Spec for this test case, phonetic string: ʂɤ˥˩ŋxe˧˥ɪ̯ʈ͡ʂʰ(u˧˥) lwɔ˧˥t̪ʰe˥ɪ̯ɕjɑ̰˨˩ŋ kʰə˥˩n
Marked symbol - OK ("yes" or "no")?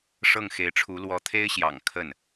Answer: yes